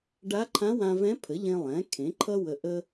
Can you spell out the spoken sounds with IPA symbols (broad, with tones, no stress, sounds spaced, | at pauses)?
ɖ a˧˥ ǃʰ ã˧˥ w ã˧ v ɛ̃˧˥ pʰ ə˩˥ ʎ ẽ˧ lˠ ɛ̃˩˥ kʰ ẽ˩˥ ǃʰ ʌ˥ w ə˧ ʔ ə˥